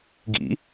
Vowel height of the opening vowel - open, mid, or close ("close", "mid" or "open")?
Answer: close